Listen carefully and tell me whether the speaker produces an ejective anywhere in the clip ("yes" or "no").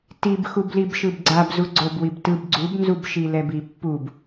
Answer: no